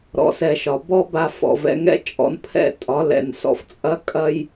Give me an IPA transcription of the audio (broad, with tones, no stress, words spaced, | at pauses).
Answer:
ɾɔ̰˨ sɛ˨ʃɒ˨ bɔ˦ba˧ fɔ̰˨ vɛ̰˧ŋɛ̰˦t͡ʃʼɔ̰˧n pʰɛ̰˦˨ tʼɒ˨˦lɛ̰˨nsɔ̰˧ft͡sʼɐ˦ kʼɐ˦j